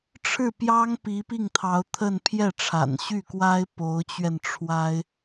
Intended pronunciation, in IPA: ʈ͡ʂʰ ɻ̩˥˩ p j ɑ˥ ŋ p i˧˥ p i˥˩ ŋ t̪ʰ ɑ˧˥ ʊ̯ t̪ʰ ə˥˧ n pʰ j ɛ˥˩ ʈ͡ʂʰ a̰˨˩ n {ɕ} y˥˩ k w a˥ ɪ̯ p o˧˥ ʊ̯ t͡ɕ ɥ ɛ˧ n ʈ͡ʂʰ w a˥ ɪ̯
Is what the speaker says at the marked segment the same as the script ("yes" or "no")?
yes